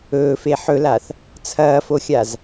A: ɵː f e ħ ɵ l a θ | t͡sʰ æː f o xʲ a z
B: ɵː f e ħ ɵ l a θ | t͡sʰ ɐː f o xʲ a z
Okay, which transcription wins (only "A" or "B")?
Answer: B